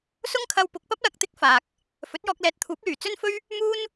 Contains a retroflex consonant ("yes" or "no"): no